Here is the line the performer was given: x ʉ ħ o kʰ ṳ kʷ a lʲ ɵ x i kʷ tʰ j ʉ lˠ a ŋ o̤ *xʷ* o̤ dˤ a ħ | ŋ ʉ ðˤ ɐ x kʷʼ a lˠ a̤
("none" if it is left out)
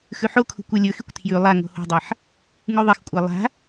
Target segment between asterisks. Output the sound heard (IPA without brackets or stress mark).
h